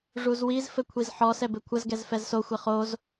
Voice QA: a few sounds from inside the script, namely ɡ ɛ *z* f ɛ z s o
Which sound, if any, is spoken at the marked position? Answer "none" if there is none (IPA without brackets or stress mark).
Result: z